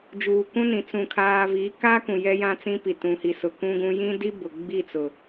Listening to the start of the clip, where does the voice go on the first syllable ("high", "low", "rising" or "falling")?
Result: low